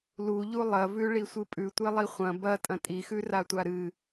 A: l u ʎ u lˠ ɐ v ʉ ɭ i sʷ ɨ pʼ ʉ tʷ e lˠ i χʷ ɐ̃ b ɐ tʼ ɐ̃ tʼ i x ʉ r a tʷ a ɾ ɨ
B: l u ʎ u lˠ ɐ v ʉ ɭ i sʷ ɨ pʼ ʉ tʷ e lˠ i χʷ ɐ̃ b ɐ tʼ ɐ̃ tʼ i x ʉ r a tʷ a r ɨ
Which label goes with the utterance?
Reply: A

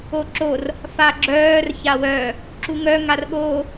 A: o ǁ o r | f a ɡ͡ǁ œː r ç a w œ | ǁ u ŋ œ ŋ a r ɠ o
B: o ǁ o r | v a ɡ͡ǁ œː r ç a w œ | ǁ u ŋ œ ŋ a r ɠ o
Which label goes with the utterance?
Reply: A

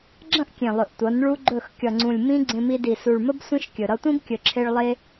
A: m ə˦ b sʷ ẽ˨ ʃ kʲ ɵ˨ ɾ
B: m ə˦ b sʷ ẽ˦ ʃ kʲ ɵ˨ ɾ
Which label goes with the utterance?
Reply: B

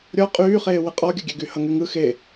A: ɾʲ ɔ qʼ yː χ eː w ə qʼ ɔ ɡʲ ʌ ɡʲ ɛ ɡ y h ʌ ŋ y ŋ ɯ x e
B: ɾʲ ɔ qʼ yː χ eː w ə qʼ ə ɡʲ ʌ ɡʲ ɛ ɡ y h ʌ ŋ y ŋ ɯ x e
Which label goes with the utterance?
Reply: A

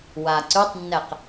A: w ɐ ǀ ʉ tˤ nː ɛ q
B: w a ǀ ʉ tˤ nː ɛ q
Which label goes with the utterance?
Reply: B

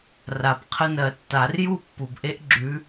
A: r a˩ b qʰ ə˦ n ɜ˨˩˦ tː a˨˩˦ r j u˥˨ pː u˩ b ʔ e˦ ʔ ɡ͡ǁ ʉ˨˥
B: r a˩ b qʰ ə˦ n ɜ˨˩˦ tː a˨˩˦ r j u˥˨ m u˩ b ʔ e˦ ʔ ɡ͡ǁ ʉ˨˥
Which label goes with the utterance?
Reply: A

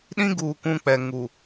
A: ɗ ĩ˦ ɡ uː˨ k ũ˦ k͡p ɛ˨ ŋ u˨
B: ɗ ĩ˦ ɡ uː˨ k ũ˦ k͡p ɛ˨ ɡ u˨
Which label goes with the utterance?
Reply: A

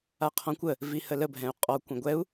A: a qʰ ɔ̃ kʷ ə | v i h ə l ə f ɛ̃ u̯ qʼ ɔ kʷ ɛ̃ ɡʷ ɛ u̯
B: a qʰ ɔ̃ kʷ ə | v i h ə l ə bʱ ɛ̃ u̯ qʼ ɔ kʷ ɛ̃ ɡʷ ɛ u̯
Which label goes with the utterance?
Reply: B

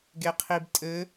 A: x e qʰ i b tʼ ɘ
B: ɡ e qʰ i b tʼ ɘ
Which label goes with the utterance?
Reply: B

